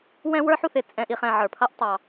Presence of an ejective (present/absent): present